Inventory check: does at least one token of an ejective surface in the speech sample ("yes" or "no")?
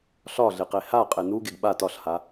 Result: yes